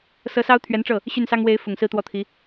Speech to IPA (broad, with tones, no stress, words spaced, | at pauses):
sɤ˧˥sɑ˥ʊ̯ t̪ʰɥɛ˧˥nʈ͡ʂɤ˥˩ | ɕy˥˩nsɑ˥ŋ we˧˥ɪ̯fʊ˨˩ŋ sɹ̩˥˧t̪wɔ˥˩t̪ʰi˧˥